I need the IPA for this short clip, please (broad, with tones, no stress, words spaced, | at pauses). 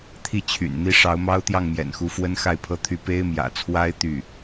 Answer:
t̪ʰi˥˩t͡ɕʰy̰˨˩nn̪i˥˩ ʂɑ˧˥ʊ̯mɑ˥ʊ̯t̪jɑ˥˩ŋ mjɛ̰˨˩nxu˧˥fwə˥n xa˥˩ɪ̯pʰɤ˥t̪ʰy˥˩ pe˥ɪ̯mjä̰˨˩t͡sʰwa˥ɪ̯ t̪y˥˩